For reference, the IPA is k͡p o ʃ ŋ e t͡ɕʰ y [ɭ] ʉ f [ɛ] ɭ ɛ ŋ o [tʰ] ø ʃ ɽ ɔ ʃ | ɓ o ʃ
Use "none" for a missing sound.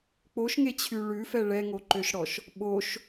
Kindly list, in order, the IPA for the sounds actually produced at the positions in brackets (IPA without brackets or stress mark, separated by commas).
ɭ, ɛ, ǃ